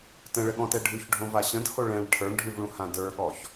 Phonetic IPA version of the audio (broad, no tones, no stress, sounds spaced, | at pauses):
t ə̃ ɭ ə ɠ ɔ̃ t ɛ ɖʱ ʉ ç ɖʱ õ v a ɕ ə̃ d h o ɭ ɛ̃ ɭ ʈʰ ə˞ ɳ ɖʱ ʉ v ɭ ũ h ã d ə˞ ɠ ɔ ç